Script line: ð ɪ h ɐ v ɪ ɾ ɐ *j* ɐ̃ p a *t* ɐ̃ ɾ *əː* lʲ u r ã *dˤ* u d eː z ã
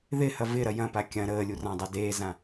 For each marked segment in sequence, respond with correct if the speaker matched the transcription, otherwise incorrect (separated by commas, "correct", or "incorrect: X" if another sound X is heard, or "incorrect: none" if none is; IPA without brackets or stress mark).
correct, incorrect: kʲ, correct, correct